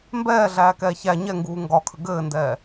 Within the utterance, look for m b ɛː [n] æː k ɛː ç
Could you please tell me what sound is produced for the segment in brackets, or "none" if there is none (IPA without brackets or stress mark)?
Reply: ɮ